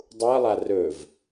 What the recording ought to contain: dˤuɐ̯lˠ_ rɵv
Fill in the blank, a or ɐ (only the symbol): a